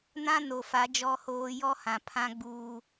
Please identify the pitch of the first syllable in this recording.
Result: high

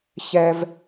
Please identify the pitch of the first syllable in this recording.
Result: high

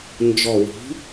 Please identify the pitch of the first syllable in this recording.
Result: low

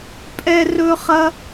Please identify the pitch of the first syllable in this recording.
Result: high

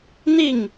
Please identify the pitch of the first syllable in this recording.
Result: falling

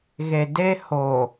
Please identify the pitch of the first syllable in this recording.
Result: low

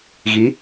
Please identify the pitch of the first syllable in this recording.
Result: rising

